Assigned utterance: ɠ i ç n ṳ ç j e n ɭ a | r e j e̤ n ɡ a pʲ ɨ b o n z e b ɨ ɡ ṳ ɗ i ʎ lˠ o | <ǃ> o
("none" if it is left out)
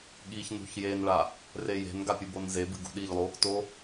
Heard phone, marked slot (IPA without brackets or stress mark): t